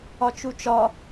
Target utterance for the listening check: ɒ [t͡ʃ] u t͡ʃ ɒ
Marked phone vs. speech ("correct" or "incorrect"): correct